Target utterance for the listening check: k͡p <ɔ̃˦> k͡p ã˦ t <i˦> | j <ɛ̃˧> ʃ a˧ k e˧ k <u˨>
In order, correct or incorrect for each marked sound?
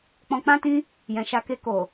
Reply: incorrect: ɔ̃˧, incorrect: ĩ˦, incorrect: ɛ̃˨, incorrect: o˨

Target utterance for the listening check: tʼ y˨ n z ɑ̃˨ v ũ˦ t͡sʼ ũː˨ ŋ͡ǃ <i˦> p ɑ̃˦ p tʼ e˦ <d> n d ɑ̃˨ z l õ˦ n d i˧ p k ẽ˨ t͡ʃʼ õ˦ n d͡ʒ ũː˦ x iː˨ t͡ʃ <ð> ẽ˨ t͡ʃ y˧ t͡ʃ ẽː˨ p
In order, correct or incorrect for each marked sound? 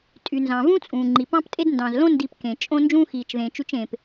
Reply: incorrect: i˨, correct, correct

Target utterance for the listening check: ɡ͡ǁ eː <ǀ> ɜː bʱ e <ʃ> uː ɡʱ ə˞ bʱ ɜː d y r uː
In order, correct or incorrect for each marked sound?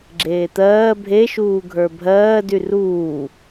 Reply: incorrect: t̪, correct

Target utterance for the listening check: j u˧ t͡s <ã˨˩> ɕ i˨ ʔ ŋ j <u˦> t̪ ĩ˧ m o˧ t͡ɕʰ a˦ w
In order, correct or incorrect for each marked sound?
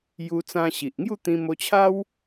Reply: incorrect: ã˧, incorrect: u˥˧

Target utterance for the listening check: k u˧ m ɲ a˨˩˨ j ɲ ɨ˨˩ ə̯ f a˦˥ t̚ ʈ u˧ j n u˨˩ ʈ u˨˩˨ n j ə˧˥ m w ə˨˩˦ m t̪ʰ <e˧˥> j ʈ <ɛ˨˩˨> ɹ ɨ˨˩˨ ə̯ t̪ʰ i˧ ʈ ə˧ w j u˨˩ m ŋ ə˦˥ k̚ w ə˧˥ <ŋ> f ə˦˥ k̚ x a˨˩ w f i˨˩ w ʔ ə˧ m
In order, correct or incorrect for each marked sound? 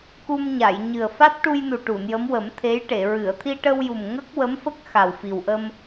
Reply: correct, incorrect: e˨˩˨, incorrect: m

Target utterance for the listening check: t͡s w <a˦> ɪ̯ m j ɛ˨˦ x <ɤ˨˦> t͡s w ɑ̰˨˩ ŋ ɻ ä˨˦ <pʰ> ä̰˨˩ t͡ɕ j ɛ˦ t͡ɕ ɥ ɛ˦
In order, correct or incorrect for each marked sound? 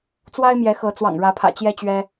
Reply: correct, correct, correct

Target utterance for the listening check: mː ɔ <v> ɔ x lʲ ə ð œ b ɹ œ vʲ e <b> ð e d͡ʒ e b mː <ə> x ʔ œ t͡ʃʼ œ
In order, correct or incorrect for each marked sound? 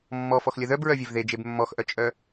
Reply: incorrect: f, incorrect: v, incorrect: ɔ

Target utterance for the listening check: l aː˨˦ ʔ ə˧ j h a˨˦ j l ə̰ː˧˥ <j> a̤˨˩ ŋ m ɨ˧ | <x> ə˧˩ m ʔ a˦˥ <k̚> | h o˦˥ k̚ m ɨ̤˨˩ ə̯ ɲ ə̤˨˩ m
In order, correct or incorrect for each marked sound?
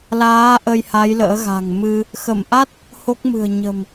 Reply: incorrect: ɣ, correct, incorrect: t̚

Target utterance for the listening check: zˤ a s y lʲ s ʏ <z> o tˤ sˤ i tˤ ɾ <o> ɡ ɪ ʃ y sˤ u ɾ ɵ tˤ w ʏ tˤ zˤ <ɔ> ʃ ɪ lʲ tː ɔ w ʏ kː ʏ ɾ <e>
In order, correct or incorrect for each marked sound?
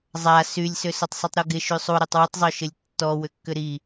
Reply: incorrect: s, correct, incorrect: ɵ, incorrect: i

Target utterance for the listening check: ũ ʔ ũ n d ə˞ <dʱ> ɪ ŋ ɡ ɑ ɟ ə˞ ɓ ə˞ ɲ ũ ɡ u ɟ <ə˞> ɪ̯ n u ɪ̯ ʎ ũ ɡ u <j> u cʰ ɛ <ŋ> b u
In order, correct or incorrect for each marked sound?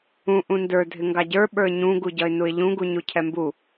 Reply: correct, incorrect: ʌ, incorrect: ɲ, incorrect: m

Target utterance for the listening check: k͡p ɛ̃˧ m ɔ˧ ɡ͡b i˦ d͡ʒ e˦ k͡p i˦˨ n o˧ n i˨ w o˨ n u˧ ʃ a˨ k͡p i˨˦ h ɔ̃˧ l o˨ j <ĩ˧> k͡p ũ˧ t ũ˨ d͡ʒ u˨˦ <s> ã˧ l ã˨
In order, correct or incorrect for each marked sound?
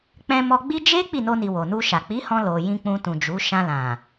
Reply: correct, incorrect: ʃ

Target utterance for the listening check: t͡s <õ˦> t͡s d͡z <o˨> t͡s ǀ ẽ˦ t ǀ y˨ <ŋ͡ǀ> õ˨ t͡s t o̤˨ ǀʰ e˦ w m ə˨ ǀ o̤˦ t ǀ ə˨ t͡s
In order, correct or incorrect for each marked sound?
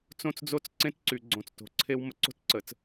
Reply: correct, incorrect: o˦, incorrect: ɡ͡ǀ

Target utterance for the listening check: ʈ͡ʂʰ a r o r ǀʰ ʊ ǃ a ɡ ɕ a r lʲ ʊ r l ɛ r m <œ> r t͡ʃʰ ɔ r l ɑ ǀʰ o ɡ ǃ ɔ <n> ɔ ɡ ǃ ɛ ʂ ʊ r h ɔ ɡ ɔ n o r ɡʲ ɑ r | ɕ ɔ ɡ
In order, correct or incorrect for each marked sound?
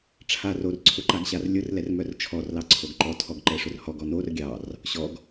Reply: correct, incorrect: tʰ

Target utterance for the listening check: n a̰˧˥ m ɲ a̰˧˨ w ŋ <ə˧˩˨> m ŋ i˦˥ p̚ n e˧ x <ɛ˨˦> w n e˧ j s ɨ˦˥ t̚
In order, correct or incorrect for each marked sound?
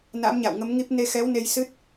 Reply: incorrect: ə˨˦, correct

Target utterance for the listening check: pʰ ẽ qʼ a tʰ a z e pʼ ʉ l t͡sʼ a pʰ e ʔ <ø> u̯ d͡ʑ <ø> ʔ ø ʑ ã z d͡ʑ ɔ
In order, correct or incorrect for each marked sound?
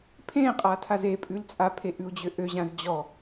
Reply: incorrect: ʉ, correct

